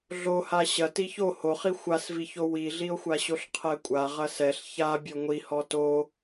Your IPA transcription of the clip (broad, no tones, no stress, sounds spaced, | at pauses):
ɮ o h a ɕ ɐ t i ç o h o χ i xʷ a s v i ç o w i ɮ i o̯ xʷ a ɕ o ɬ qʰ ɛ kʷʼ a ʁ ɐ s ɛ ɬ ç a bʲ ɔ ŋʷ i h ɔ t o